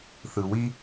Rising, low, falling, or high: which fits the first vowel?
low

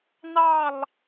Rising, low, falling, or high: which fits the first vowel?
falling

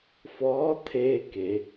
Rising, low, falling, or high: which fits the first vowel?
rising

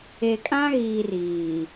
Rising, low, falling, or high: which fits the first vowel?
low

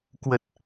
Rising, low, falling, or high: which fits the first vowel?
low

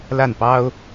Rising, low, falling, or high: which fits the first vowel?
falling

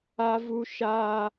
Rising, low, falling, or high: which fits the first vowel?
high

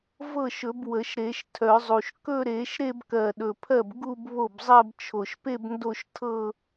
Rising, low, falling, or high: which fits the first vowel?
falling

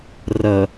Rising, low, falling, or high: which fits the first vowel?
low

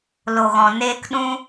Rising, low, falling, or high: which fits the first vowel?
low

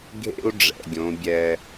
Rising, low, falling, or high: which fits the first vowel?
high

